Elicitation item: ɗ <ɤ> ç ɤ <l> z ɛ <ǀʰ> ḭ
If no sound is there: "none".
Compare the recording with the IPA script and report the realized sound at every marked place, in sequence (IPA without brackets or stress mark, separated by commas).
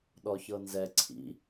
ɔ, n, ǀʰ